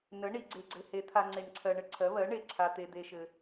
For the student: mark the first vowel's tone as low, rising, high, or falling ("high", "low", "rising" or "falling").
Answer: rising